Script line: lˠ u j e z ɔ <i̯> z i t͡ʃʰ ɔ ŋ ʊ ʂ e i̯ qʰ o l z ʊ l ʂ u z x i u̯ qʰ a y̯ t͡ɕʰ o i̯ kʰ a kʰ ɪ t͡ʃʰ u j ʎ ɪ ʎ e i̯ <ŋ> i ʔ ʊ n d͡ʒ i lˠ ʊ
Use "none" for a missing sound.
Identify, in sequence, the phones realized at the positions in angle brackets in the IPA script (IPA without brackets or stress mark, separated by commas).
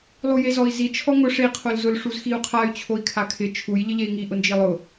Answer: i̯, ŋ